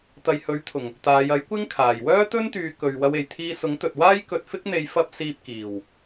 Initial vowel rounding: unrounded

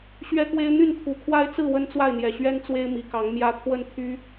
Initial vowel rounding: unrounded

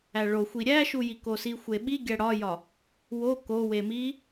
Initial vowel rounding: unrounded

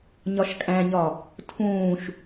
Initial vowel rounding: rounded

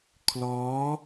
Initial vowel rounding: rounded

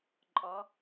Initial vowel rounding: rounded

